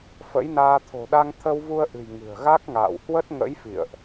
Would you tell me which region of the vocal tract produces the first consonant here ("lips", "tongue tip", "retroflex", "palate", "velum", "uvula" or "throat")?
lips